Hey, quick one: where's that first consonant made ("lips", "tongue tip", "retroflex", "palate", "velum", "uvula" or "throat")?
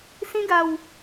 tongue tip